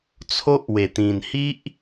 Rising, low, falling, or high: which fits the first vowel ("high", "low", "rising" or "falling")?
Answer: high